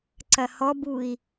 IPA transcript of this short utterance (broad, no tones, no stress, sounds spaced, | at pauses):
ǀ ɐ h ɔ b u i̯